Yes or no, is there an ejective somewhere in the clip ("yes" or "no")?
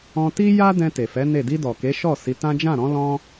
no